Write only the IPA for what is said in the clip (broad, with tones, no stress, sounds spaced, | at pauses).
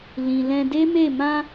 l ĩ˨ l ɛ̃˧ d e˦ m e˦˨ m ã˧